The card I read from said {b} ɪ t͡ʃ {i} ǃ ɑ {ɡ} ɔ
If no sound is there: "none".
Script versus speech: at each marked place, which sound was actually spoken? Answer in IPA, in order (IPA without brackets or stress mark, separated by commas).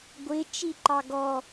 ɡʷ, i, ɡ